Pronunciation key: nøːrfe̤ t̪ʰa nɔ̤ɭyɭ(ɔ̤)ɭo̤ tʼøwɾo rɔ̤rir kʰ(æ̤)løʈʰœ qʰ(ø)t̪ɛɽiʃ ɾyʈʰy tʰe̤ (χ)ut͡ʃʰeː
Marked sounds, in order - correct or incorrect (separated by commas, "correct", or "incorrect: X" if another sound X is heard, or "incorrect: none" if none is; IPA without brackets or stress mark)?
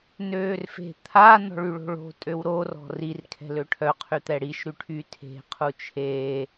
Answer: incorrect: o̤, incorrect: ɛ̤, incorrect: y, incorrect: qʰ